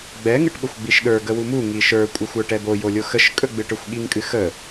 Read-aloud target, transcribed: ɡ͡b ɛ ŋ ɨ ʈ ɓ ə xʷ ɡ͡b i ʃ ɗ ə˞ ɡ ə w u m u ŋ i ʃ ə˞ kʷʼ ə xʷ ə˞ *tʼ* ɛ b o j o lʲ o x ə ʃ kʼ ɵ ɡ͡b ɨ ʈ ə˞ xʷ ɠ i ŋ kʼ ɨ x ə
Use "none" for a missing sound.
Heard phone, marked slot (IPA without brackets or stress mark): ʈ